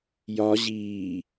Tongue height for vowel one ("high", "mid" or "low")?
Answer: low